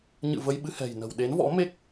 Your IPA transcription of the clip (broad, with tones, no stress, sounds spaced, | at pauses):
ɲ ɨ̰˧˨ v ə˧ j ɓ ɨ˧ h ɛ̤˨˩ j n ə̤˨˩ w ɗ e˨˦ n v ɔ̰˧˥ m e˦˥ k̚